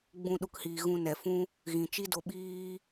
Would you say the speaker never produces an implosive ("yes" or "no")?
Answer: no